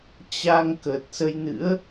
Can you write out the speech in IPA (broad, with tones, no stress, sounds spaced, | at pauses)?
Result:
t͡ɕ a˧ ŋ k ə˨˩ t̚ s ə˧ j n ɨ̰˧˥ ə̯